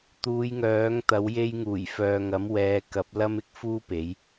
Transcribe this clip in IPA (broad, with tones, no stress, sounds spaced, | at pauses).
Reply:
t̪ uː˨˧ j ŋ œː˨˥ ŋ t̪ ɐ˨˥ w j e˧ j ŋ uː˨˩ j f œː˨ ŋ ɐ˨˥ m w ɛː˨˧ k ɐ˨˥ p̚ l ɐ˥ m ɪ˥ k̚ f uː˥ p e˨˥ j